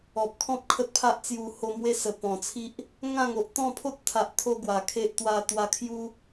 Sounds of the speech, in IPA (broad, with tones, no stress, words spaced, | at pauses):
ɔ˨p̚kʰɔ̃˦p̚ kʰə˦t̚pʰa˦ʔt͡sju˧ ho˧ mwe˦sə˨˩ pɔ̃˨˩t͡sʰi˦ʔ | ŋã˥˧ŋo˨ʔ t̪ɔ̃˥˧pʰo˦t̚t̪ʰa˨ʔt̪ʰo˧ ɡwa˨˩kʰe˦ʔ t̪wa˧t̪wa˧ kʰju˦